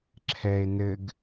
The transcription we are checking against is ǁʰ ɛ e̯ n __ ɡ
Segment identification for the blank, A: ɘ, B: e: A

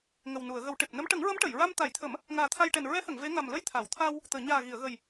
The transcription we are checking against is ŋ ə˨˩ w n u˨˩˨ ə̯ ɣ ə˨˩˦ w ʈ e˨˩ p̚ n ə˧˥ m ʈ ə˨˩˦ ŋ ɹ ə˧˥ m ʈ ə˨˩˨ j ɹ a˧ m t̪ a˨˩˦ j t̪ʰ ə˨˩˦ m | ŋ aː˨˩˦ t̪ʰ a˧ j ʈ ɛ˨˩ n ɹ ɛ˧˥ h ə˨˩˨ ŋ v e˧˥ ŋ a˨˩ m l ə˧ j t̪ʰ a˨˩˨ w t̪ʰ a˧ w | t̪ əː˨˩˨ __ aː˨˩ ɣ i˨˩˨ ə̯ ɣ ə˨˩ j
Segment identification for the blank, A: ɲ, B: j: A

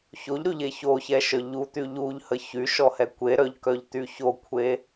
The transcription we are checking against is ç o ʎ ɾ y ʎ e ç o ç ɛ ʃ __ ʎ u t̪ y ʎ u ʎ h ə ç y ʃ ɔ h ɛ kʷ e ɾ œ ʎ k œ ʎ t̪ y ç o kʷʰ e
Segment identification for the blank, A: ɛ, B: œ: B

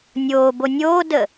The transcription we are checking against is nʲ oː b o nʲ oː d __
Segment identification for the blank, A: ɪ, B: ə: B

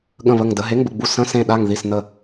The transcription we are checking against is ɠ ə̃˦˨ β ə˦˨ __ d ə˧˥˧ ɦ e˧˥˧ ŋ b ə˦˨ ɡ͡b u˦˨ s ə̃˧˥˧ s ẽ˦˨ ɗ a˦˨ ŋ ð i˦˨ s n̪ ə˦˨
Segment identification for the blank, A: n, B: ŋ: B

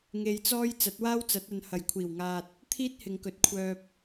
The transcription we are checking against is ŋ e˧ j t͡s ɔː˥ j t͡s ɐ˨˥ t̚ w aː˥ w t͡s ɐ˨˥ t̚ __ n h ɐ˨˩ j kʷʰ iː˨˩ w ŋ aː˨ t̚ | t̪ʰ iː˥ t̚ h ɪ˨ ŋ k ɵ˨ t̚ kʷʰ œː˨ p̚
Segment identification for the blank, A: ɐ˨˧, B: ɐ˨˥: A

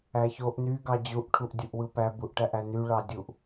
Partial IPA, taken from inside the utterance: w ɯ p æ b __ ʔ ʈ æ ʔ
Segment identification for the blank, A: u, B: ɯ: A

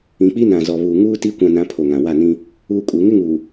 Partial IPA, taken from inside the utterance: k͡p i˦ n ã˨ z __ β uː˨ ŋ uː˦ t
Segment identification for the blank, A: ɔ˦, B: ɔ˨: B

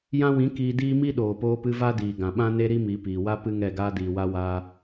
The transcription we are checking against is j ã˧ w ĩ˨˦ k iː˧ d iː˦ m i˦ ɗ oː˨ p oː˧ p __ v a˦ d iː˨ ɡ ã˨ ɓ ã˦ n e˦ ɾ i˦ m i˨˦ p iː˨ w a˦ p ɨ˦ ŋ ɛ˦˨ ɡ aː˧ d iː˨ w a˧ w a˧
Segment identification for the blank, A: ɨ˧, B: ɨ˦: A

